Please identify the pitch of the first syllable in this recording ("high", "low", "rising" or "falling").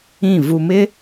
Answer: falling